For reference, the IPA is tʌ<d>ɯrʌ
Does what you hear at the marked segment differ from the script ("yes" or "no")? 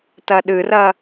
yes